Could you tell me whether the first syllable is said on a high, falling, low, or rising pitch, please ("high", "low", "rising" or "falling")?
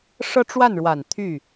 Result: falling